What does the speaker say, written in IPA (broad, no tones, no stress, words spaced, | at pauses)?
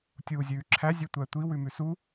tʲuːzʲʉːǁʰæ zʲʉtʷætʷi wʉmʉsu